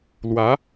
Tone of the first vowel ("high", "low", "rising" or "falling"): rising